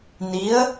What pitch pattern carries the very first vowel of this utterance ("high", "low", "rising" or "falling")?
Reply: rising